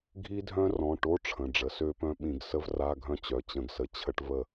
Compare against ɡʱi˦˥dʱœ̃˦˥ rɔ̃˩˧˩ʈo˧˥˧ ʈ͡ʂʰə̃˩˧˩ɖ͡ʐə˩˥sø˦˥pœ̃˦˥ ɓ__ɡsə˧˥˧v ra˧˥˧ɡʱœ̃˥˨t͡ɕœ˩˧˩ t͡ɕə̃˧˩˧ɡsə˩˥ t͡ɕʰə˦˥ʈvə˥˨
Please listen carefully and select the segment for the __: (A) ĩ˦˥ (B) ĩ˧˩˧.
B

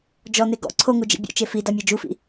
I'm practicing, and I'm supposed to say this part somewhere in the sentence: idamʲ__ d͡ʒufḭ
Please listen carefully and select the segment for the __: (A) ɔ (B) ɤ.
B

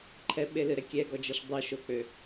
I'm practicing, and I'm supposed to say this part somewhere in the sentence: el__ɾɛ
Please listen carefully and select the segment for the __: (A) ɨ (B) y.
A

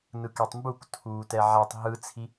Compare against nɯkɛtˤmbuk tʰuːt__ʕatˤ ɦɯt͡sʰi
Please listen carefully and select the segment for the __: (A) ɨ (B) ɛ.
B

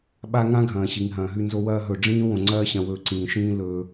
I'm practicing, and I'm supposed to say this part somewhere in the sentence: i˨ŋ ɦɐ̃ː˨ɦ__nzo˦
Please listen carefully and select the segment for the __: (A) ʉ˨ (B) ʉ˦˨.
B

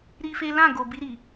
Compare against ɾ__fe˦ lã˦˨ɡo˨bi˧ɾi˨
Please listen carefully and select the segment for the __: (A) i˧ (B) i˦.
B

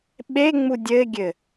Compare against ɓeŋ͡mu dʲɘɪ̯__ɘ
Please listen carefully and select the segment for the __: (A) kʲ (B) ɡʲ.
B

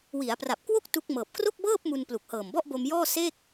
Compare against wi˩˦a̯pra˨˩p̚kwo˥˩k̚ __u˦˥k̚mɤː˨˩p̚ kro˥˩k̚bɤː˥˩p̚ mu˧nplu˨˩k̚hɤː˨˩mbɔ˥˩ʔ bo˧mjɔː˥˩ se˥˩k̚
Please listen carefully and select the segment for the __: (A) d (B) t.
B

